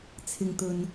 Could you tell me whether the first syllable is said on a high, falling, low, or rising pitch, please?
low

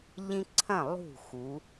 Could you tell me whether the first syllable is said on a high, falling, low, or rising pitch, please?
high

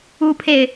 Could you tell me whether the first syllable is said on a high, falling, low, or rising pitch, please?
high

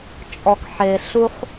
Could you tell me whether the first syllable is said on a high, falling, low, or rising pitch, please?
low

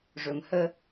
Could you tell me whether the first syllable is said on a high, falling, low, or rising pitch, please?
low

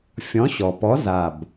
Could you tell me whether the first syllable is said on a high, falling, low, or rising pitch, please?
rising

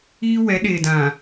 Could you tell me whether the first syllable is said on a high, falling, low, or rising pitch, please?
high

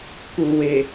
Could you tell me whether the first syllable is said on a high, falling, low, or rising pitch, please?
low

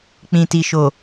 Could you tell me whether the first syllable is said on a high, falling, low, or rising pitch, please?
low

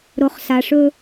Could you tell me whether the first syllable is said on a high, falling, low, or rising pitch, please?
low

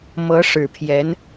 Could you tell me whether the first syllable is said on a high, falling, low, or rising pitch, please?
rising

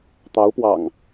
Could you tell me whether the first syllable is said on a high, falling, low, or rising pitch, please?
rising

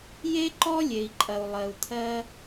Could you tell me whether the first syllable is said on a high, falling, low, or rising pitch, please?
high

